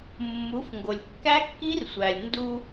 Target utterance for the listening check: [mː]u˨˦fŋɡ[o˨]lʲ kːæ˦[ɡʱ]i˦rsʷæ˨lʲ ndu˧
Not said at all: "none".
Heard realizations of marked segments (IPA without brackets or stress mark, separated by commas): mː, o˨, kː